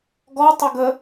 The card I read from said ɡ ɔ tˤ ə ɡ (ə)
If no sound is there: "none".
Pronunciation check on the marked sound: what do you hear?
ə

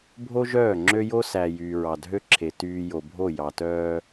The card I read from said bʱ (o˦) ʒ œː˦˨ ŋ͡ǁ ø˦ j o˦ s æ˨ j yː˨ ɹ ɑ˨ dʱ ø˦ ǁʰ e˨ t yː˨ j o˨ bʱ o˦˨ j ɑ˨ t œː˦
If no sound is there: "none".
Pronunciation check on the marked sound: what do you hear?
o˦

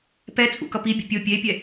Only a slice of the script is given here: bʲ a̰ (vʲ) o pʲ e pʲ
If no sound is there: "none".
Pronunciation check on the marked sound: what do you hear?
pʲ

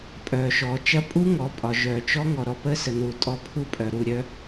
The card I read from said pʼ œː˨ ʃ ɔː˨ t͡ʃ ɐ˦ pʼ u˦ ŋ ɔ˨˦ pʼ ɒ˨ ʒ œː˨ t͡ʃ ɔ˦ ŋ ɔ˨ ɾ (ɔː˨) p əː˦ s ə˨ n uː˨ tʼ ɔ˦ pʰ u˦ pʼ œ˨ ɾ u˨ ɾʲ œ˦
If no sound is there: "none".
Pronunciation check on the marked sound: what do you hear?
ɔ˨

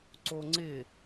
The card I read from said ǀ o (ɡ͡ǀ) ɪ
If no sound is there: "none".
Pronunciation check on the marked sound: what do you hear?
ŋ͡ǀ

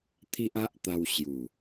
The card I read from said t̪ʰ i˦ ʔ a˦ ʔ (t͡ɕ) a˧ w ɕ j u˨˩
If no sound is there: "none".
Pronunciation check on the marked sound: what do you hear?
t̪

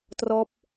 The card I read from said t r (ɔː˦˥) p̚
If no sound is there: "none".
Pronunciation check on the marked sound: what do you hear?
ɔː˦˥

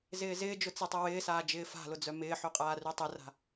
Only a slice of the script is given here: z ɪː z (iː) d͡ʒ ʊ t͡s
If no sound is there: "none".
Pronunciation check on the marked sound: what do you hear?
ɪː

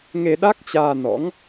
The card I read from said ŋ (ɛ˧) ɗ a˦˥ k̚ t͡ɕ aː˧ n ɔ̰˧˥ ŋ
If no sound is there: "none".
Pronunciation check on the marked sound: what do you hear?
e˧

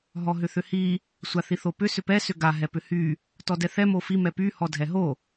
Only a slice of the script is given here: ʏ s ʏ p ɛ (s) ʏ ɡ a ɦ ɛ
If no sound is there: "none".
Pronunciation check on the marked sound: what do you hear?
s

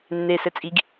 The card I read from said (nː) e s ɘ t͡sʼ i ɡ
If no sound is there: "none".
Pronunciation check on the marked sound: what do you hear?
nː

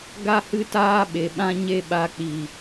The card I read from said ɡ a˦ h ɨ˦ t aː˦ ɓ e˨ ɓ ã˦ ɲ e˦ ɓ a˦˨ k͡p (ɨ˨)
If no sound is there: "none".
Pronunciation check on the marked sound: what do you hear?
i˨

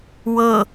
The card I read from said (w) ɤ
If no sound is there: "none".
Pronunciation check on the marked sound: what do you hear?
w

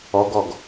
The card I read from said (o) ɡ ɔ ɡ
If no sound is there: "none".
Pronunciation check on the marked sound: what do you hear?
ɔ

